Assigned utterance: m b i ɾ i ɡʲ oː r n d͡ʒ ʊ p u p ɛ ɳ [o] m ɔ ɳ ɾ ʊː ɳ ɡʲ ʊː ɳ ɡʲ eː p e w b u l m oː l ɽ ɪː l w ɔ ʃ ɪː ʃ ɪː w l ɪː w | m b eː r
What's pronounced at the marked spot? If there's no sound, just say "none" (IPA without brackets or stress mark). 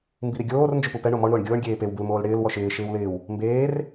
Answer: o